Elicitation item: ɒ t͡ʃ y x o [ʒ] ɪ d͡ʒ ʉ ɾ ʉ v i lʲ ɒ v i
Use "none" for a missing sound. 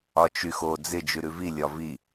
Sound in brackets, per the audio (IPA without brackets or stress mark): d͡z